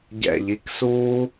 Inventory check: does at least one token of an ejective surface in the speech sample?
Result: no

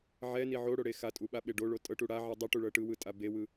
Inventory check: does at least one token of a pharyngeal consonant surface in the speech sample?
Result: yes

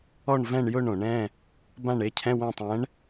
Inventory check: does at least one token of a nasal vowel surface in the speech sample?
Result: yes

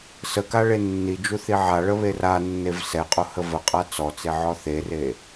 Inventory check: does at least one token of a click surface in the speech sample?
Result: no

